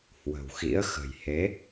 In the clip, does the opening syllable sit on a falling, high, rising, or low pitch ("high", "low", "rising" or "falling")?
low